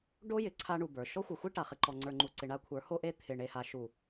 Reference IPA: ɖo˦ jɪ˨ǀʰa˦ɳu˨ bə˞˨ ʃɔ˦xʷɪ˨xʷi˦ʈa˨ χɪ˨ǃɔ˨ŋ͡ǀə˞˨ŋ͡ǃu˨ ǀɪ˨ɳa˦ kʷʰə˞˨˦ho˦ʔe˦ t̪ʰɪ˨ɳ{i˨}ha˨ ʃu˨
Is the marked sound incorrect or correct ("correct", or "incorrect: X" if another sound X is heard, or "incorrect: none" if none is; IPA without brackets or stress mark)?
incorrect: e˨